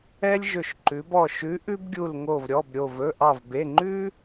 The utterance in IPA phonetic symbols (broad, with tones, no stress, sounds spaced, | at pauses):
ɛ˥ lʲ ʒ ɵ˧˩ ʃ ǃ ʉ˩˧ b ɔ˧˩ ʃ ʉ˨˥ ʔ ʉ˥ b ɡʲ u˧˩ l ŋ o˧˩ v ɾʲ ɔ˩˧˩ b ɾʲ o˧˩ v ɵ˩˧˩ ʔ ɑ˧˩ v b e˩˧˩ ŋ͡ǃ ʉ˥